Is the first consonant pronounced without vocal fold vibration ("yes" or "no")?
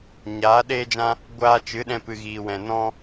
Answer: no